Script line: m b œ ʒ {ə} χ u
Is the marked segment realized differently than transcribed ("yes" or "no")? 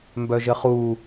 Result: no